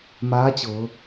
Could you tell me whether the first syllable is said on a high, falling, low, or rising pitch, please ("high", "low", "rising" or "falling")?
rising